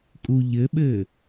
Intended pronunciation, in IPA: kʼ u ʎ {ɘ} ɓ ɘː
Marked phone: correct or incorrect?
correct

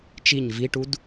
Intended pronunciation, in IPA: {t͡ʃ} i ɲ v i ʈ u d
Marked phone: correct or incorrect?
correct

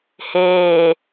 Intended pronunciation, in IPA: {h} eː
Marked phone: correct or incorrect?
correct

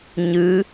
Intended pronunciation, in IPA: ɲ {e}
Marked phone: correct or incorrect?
incorrect: ɨ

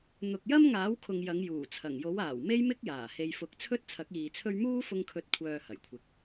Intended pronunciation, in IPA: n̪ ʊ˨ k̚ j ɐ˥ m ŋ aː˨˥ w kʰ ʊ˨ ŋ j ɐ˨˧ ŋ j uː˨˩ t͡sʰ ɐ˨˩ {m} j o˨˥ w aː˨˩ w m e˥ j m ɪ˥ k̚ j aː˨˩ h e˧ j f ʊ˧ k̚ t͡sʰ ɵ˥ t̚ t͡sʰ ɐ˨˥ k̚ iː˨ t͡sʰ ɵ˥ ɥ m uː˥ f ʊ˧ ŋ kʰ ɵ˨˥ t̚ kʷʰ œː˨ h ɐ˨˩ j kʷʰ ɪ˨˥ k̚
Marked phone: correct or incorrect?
incorrect: ŋ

